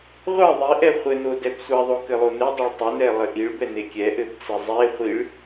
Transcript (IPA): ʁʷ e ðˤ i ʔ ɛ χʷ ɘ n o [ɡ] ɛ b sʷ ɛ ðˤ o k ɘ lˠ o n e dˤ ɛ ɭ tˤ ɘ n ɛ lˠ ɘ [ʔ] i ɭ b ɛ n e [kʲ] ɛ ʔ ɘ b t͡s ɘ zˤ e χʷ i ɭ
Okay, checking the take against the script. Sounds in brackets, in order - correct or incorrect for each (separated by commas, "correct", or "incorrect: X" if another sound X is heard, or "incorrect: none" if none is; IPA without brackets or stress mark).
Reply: incorrect: d, correct, correct